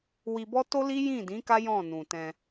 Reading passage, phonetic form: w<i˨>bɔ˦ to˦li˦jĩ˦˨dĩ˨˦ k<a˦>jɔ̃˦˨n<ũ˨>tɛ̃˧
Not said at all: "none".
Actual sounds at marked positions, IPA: i˧, a˦, ũ˨

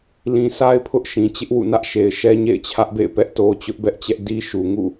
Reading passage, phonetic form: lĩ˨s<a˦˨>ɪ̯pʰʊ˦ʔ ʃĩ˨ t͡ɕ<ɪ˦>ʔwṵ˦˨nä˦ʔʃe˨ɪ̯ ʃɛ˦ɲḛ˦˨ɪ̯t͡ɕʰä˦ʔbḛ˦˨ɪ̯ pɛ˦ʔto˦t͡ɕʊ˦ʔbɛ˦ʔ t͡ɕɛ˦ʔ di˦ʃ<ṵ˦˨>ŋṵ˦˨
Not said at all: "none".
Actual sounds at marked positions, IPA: a˦, ɪ˦, u˨

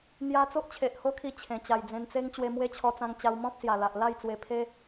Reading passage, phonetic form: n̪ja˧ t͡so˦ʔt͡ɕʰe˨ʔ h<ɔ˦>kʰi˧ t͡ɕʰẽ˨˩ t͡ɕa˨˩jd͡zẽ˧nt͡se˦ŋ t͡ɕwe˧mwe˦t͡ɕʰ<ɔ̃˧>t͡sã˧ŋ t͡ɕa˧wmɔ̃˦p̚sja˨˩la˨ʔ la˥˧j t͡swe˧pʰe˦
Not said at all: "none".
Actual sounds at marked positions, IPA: o˦, ɔ˧

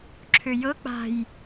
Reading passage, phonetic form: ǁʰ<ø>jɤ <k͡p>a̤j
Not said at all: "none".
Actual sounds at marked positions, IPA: ø, k͡p

